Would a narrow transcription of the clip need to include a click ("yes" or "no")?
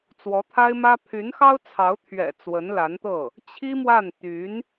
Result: no